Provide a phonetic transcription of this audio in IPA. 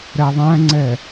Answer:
ɾ ɛ ðˤ æ̃ ŋ͡ǀ ɛ

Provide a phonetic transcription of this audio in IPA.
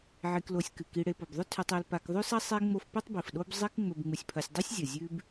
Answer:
ʕ i˨ k l o˨ sʲ k ɨ˩ k i˨ ɽ e˨ p o˩ b ðˤ ɵ˥ tʰ ʉ˨ tˤ e˨ l p a˨ k ðˤ ʉ˥ s ɐ˥ sˤ e˦ ŋ͡m o˦ f p ʉ˥ tˤ b i˩ f ɗ o˦ b zˤ i˦ k ŋ͡m ɵ˨ b ŋ͡m ɨ˨ sʲ pʰ ɐ˨ sʲ dˤ u˥ sʲ zʲ ɐ˩ zʲ ʉ˦ b

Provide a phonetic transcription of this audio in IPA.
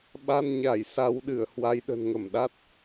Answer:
ɓ a˧ n ɲ a˧˩ j s a˨˦ w ɗ ɨ˧˩ ə̯ h w a˨˦ j ɗ ə̤˨˩ n ŋ ə˧˩ m ɗ a˦˥ t̚

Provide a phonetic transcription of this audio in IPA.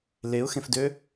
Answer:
l e ʊ̯ x ẽ f d øː

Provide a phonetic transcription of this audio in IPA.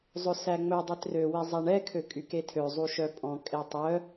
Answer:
zˤ ɵ s æ ŋ͡m ɵ dˤ e t r ø w i zˤ æ ɳ ɛ kʰ ø kʼ y k e tʰ ø zˤ u ʃ œ pʼ ɔ̃ kʼ e tˤ œ

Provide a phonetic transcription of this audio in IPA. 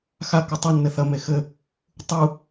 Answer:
x a k ɘ tˤ ɨ nː ɘ θ ɐ m e x ɘ | tˤ u

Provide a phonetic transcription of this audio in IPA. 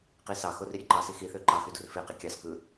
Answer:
q i s ɑ x o r i ɾʲ e ǃ ɑ s i x i θ ø ǃ ɑ x y d u r f e q i kʲ ɑ s k ɯ

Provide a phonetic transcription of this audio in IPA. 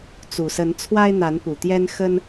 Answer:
t͡s u˨˩ s ə˨˦ n t͡sʰ w a˦ ɪ̯ n̪ a˨˦ n p u˨˩ t̪ j ɛ˦ n x ə˦ n

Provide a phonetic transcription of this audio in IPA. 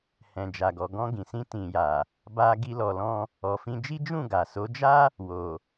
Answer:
h ɛ̃˨ d͡ʒ a˨ ɡ ɔ˨ ɡ ɔ̃˧ ɡ ĩ˨ s ĩ˧ t ĩ˨ j a˨ | b a˧ ɡ i˧ l ɔ˨ l ɔ̃˧ | ɔ˨ f ĩ˧ d͡ʒ i˦ d͡ʒ ũ˦˨ ɡ a˨ s o˨˦ d͡ʒ a˦ | w o˨

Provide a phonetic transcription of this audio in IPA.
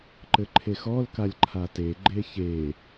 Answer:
ǃ ɘ ǃʰ e x ɔ l k a lʲ ǃʰ a t e ɡ͡ǃ e ç e

